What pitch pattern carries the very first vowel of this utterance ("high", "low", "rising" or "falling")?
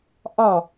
falling